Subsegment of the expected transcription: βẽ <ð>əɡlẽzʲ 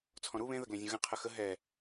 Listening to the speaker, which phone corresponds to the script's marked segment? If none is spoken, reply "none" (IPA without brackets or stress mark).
ð